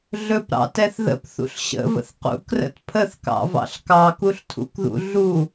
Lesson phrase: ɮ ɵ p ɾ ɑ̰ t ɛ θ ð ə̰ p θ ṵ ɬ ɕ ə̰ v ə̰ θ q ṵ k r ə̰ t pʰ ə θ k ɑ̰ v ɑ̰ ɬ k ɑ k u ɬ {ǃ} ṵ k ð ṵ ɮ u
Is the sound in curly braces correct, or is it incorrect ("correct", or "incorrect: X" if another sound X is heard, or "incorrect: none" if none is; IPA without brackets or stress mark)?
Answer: incorrect: tʰ